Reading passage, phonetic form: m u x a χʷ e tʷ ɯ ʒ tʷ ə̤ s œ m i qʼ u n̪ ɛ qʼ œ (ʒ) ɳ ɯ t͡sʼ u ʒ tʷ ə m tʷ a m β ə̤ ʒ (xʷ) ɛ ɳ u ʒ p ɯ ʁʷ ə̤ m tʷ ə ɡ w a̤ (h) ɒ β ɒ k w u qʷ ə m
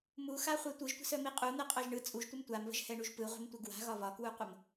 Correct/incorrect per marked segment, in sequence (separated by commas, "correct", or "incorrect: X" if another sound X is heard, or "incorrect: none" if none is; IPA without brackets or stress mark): correct, incorrect: h, incorrect: ɣ